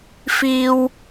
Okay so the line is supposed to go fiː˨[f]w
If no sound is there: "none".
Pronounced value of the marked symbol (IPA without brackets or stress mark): none